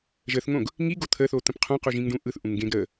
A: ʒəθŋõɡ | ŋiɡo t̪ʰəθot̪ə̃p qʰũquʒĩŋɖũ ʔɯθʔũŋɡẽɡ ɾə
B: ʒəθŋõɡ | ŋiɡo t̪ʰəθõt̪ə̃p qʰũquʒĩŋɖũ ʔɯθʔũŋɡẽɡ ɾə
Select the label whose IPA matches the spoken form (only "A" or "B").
A